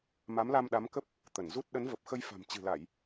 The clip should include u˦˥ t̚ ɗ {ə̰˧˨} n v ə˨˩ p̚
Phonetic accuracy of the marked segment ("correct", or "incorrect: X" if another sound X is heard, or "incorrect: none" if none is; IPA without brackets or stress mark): incorrect: ə˨˦